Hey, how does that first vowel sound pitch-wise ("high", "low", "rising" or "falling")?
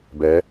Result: rising